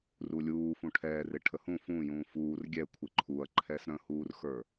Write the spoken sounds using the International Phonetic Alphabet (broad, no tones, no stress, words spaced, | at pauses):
rulʲuː fũʈʰɛːrɪ ʈʰəhũ fũːjũː fuːr ɡʲɛ kʷʰɪǃʰuɐ̯ǃʰɛs ɾə̃huːrxə˞